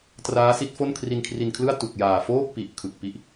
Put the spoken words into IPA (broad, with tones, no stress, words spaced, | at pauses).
traː˦˥si˦˥t̚fo˥˩n kʰri˧nkʰri˧nkʰlɯ˥˩a̯ tu˨˩k̚jaː˨˩foː˥˩k̚pi˨˩ʔ kʰɯ˨˩k̚pi˦˥ʔ